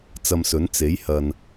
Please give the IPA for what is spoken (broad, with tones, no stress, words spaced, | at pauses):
t͡sɐ˧msɵ˨˥n t͡se˨˥jhɐ˧n